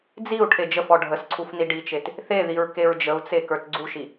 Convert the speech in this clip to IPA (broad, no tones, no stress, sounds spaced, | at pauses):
d͡z i u̯ ʈʰ e d͡ʒ ə f ɔ ɖʱ ə s ǀʰ u f n i ɖ i t͡ʃ e t | θ e ð i ɹ k e ɹ d͡ʒ ə u̯ t͡s e k ə˞ t ɡ͡ǀ u ʃ i